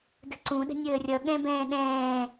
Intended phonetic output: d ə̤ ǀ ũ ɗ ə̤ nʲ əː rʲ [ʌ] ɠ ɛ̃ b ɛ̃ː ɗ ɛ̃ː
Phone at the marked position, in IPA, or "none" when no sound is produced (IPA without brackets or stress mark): ʌ